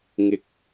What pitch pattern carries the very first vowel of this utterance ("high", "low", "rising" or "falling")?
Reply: rising